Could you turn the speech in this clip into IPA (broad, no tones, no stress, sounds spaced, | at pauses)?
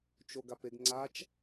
t͡ʃ o ɡ a p e ɡ ŋ͡ǀ a t͡ʃ